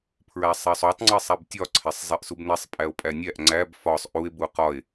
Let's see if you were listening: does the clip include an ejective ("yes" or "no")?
yes